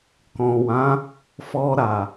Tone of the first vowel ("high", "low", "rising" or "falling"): low